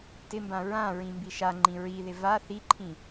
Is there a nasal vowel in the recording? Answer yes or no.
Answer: yes